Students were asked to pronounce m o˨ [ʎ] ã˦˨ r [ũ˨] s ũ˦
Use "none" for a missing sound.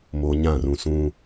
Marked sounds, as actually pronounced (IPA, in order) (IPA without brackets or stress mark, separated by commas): ɲ, ũ˨